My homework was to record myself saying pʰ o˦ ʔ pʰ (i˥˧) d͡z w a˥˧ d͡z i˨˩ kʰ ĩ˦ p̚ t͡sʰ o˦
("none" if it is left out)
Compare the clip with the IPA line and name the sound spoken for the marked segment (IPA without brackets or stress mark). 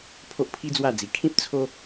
i˦